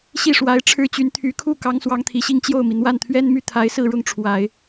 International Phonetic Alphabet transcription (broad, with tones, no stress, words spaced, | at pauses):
ɕi˥˩ʂwa˧˥ɪ̯ ʈ͡ʂʰɻ̩˥t͡ɕy˧˥nt̪ʰy˧˥ kʰu˥˩ kɑ˧˥ŋswɑ˧˥ŋt̪ʰi˨˩ɕi˥˧ŋ t͡ɕjo˥˩ʊ̯mi˩ n̪wa˥˩nt̪ʰɥɛ˥n my˥˩t̪ʰa˧˥ɪ̯sɹ̩˥˧ɻʊ˥˩ŋ ʈ͡ʂʰwa˨˩˦ɪ̯